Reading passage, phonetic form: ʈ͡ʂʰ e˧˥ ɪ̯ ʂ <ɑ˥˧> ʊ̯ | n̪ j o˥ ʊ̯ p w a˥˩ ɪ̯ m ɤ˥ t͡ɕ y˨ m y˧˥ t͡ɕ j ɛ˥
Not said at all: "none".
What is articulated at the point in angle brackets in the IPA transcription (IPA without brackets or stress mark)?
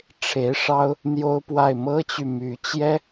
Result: ɑ˥